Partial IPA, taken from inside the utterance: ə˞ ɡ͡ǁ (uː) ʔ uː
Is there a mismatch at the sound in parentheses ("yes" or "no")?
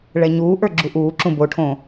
yes